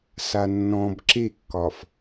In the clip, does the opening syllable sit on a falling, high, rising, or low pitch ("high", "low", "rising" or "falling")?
low